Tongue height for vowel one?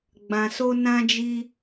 low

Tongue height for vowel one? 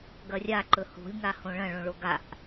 low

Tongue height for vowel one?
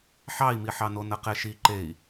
low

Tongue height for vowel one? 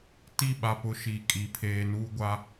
high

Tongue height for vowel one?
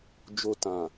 mid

